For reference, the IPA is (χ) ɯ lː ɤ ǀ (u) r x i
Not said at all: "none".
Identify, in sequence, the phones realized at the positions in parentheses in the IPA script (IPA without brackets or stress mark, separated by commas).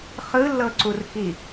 χ, u